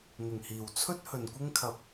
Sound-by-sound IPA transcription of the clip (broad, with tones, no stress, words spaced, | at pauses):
n̪ɪ˨˩ŋhiː˨˩wt͡sʰɵ˥t̚ hɵ˨nkʷɪ˥ŋkʰɐ˧p̚